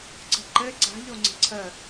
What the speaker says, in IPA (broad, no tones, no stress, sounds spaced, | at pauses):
ǀ ə̤ ǃ ɘ ǀ a̤ ʎ o ŋ͡ǀ ə̤ ǀʰ ə